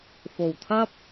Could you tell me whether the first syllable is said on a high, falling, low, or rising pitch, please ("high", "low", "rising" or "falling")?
low